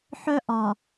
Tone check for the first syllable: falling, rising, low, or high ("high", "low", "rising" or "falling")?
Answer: high